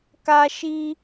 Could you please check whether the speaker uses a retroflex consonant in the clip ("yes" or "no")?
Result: no